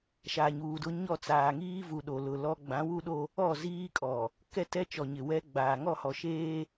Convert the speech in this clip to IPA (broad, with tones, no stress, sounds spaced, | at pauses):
ʃ a˨ ɲ uː˨ d ʊ˦ ɲ ɔ˦˨ t͡s aː˨ ŋ iː˦ v u˨ ɗ o˨ l ʊ˨ l ɔ˦ ɡ͡b ã˨˦ w u˦ ɗ o˦ | ɔ˦˨ z iː˦ kʼ ɔ˨ | k ɛ˦ t ɛ˦ t͡ʃ ɔ˨ ɲ ɪ˨ w ɛ˦ ɡ͡b aː˨ ŋ ɔ˦˨ h ɔ˨ ʃ eː˦